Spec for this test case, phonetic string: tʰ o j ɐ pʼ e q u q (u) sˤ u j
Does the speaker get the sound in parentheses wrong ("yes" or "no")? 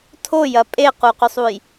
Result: yes